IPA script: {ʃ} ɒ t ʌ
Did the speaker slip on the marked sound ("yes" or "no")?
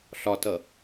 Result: yes